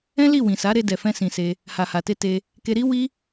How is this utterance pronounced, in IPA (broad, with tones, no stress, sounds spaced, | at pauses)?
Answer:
ɛ̃˦ l i˦˨ w ĩ˨ s a˨˦ ɾ e˧ d ɛ˨ f ɛ̃˧ s ĩ˧ s e˦ | h a˨ h a˨ t e˧ t e˧ | k e˧ ɾ i˦ w i˦